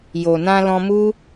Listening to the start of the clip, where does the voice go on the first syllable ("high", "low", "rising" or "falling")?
low